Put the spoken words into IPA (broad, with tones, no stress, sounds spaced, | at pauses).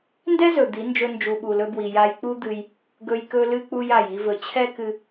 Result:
n d ɛ˦ z ɵ˨ d̪ i˨˦ n d͡ʒ ɵ˧ n d͡ʒ u˨ ɓ u˨ l ɵ˧ b w i˨ j a˧ j k͡p u˦ d̪ ɨ˧ j | ɡ ɵ˧ j k ɵ˧ l ɨ˧ k͡p u˧ j a˨ j i˧ v ɵ˨ t͡ɕʰ ɛ˦ k ɨ˧